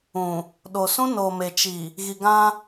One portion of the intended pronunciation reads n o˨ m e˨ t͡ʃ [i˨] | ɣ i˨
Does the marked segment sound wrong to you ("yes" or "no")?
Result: no